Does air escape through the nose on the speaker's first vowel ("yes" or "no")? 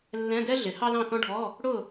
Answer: yes